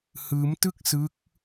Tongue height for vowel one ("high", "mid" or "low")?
high